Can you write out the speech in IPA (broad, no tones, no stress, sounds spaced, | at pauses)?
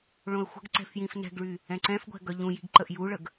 ɭ õ ə̯ xʷ ə̤ ɡ ǀ ɛ̤ f j ĩ f n ɛ̤ ɡ ɭ y | ɛ̃ ǀ ɛ̃ f ɡʷ ɛ̤ ɡ œ ʎ ũ j i̤ ɡ ǃ ə ʔ j u ɭ ə ɡ